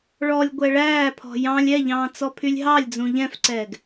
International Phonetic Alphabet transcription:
ɭ ɔ lʲ ɡʷ ɛ ɭ æː pʰ ɔ̤ j ɑ̃ lʲ ɛ ʎ ɑ̃ː t͡s ɔ pʰ y lʲ ɦ ɑ lʲ d͡z ũ ʎ ɛ̃ f ǀ ɛː ɡ

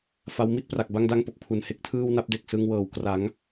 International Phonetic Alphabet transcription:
f a˦˥ w m i˥˩ t̚ p r a˨˩ k̚ b a˥˩ ŋ d a˥˩ ŋ p o˨˩ k̚ pʰ u˨˩ n h e˦˥ k̚ tʰ ɯː˥˩ w n a˥˩ p̚ d e˨˩ k̚ s ɯ˧ ŋ w ɤː˨˩ w k r a˩˦ ŋ

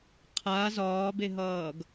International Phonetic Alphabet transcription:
qʰ a z ɒː b e ɦ ʌː ɡ

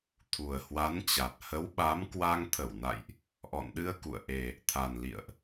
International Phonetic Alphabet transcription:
t̪ʰ u˨˩ ə̯ h w a˨˦ n t͡ɕ a˨˩ t̚ h ə˨˦ w ɓ a˨˦ m k w a˧ ŋ t̪ʰ ə˧˩ w n a̰˧˨ j ʔ | ʔ ɔ̰˧˨ n ɗ ɨ˧ ə̯ k ṵ˧˨ ə̯ ʔ e˨˩ | t̪ʰ a˨˩ n l ḭ˧˨ ə̯ ʔ

